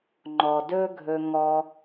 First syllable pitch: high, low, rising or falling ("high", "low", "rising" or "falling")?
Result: low